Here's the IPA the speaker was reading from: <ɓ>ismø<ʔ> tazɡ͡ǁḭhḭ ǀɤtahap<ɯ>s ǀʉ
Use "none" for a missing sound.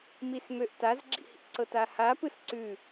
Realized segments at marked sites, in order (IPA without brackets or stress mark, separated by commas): m, ʔ, ɯ